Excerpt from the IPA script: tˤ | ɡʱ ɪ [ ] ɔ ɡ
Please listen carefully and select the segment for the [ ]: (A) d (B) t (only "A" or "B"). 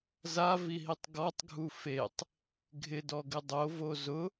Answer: A